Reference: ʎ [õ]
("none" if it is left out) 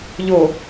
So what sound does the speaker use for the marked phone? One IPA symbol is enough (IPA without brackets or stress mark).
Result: o